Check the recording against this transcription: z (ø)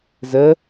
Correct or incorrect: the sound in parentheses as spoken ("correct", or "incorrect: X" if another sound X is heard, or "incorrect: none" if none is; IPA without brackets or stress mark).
incorrect: ə